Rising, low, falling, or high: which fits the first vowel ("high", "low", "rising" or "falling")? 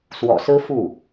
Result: low